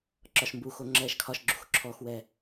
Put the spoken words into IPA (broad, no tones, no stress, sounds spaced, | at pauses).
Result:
ǁ ɒ ʃ m b u x o ŋ͡ǁ ɛː ʃ kʰ ɒ ʃ ɡ͡ǁ ṳ x ǁʰ ɔ x w ɛ